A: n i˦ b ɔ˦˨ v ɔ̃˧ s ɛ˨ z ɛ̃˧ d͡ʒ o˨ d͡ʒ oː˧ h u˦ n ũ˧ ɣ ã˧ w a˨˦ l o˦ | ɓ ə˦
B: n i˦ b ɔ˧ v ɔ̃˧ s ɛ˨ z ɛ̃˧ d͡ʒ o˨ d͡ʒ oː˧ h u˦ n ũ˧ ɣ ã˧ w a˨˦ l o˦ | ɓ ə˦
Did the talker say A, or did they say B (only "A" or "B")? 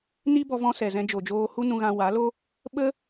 B